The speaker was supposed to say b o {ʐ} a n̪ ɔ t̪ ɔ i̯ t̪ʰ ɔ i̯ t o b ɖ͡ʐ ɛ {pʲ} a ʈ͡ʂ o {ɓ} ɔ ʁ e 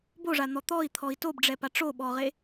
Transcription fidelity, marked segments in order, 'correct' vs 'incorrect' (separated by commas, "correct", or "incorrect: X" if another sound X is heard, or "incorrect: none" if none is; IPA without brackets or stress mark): correct, incorrect: p, correct